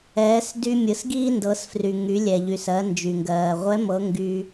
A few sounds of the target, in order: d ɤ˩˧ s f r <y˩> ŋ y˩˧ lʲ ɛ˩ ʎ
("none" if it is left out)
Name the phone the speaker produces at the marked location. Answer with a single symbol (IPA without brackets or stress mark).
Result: y˩